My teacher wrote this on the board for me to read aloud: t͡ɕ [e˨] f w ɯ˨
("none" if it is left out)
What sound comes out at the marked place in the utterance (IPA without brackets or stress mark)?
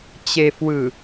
e˨